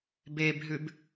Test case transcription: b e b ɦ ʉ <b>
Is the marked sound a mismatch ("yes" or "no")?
no